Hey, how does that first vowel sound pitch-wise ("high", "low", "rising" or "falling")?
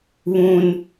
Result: high